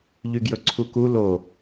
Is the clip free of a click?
no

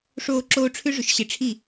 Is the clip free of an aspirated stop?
no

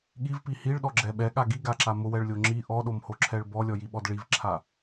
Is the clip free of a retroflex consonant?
no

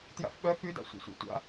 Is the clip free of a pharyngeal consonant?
yes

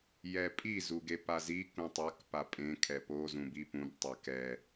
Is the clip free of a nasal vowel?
no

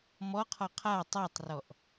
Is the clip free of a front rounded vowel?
yes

